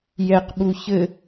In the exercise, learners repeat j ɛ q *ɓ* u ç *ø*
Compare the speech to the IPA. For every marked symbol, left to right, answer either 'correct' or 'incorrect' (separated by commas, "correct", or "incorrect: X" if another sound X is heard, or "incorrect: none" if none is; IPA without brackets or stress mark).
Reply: correct, incorrect: ɘ